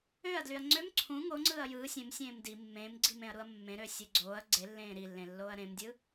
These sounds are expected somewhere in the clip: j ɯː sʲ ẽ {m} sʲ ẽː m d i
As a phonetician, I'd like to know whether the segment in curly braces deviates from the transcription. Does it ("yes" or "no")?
no